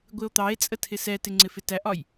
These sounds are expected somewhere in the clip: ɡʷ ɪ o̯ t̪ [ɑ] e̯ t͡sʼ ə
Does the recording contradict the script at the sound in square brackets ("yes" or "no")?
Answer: no